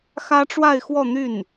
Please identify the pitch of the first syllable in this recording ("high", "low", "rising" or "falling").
high